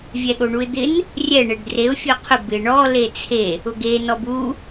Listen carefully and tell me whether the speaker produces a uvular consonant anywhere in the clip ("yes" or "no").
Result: yes